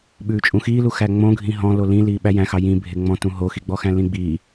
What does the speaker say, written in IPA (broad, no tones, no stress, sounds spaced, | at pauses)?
ɓ ʉː t͡ʃʼ ũ x iː l u x æ ŋ͡m õ ɡʱ ĩ ɦ ɔ̃ l o l ĩ l iː ɓ æ j æ̃ x ɑ j ĩ bʱ e ŋ͡m ɔ̃ t ũ ɦ o x i ɡ͡b ɔ x æ̃ l ĩ ɡ͡b iː